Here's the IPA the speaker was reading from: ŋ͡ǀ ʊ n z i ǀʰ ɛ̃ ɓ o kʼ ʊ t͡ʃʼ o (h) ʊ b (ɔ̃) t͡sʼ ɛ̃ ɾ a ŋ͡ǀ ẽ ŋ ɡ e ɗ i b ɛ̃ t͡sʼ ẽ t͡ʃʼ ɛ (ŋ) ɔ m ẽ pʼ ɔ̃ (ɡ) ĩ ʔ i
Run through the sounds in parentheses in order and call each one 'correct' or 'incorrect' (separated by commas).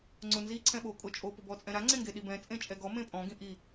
incorrect, incorrect, incorrect, correct